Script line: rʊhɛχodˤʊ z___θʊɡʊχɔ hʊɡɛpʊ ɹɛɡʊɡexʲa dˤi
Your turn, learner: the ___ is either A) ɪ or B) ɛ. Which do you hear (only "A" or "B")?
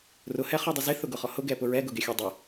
A